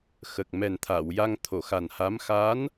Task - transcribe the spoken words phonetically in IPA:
x ə˨˩ k̚ m ɛ˨˩ n t̪ʰ a˨˩˨ w j a˧ ŋ t̪ʰ o˨˩˨ x a˨˩ n h a˧˥ m x a˧˥ n

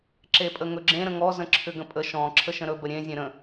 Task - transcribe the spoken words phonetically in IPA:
ǁ e pʼ ə ŋ ɵ ɡ͡ǁ ẽ ɾ ə̃ ŋ ɔ z ə̃ ǁʰ ʏ ɡ ə̃ pʼ ə ʃ ɔ̃ ǁʰ ə ʃ ə̃ ɾ ɵ b ə ɾʲ ẽ zʲ ẽ ɾ ə̃

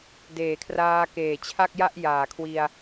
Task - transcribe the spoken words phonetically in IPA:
d eː˩˦ kʰ r aː˧ k eː˨˩ t͡ɕʰ a˥˩ k̚ j a˥˩ ʔ j aː˩˦ kʰ w i˧ a̯

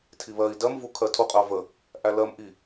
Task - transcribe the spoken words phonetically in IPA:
tʰ i β ɜ i̯ d ɜ m v u kʰ ɜ tʰ u qʼ ɜ v ə | ʔ æ l ɜ m ʔ i

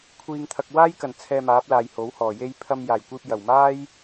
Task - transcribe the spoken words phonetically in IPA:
kʷʰ iː˨ ŋ t̪ʰ ɐ˨ k̚ w aː˥ j k ɐ˨˩ n t͡sʰ ɛː˧ m aː˨˥ p̚ l aː˨ j h o˨˥ w h ɔː˨˩ j e˥ j pʰ ɐ˧ m j aː˨˩ j kʷ iː˧ p̚ j ɐ˨˩ w m aː˥ j

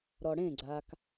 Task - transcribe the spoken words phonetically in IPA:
ɾ ɔ ɽ ẽ ɡ͡ǀ a k

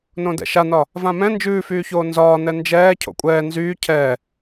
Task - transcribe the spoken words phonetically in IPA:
n õ d ɛ̰ ʃ a n ɒ | v ã m ɛ̃ n d͡ʒ ʉː f yː ç oː n z ɒː n ɛ n d͡ʒ ɛː cʰ o̰ kʷʼ ɛː n z yː cʰ ɛː

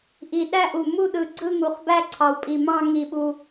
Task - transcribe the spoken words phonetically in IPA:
ʔ i˨˩ ɗ æ˥˧ ʔ u˨˩ m u˥˧ ɗ ɯ˨˩ ɡ͡ǀ ɯ˥˧ ŋ u˨˩ χ b æ˥˧ ǀʰ ɑ˨˩ w pʼ i˨˩ m ɑ̃˥˧ ŋ i˨˩ ɓ u˨˩

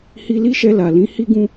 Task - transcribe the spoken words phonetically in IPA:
h i˧ l i˦ ʃ ɛ˧ l a˨ l ĩ˨˦ h i˦ ɡ ũ˦

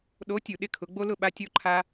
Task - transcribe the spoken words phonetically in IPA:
ɗ o˨˦ tʲ u˨ ɗ ɪ˥˨ kʰ ʊ˨˦ ɡ͡b o˥ l ʊ˥˨ ɓ a˥ tʲ o˥ ǃʰ a˥

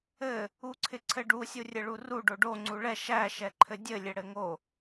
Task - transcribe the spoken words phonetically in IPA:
ɘ | u ǀʰ ɪ ǀʰ ɘ ɖ u sʲ u rʲ ɘ ɭ u r u ɖ o ɖ o ŋ͡ǀ u ɭ ɛ ʃ æ ʃ ɛ ǃʰ ɘ dʲ ɘ lʲ ɘ ɽ ɘ ŋ o

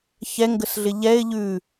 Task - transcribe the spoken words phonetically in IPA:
ç ɛ ŋ ɡ ə s ɮ ɪ ʎ ɛ ɪ̯ ʎ ʉ

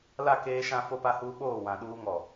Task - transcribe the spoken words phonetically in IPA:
l a˦˨ k eː˦ ʃ ã˦ f o˦ p a˦ h uː˦ ɓ oː˦˨ w ã˨ ɗ uː˦ ŋ ɔ˨

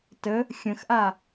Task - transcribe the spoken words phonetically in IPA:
t ə | xʲ ə̃ x ʔ a

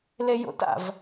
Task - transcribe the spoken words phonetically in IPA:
l e j o̰ t a̰ v

